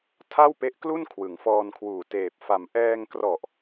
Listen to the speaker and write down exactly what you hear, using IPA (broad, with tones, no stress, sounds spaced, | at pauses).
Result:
tʰ a˥˩ w p e˦˥ ʔ k l u˥˩ n kʰ w ɯ˩˦ ŋ f ɔː˧ n kʰ w uː˨˩ t eː˨˩ p̚ f a˨˩ m ʔ ɛː˧ ŋ k r ɔ˨˩ ʔ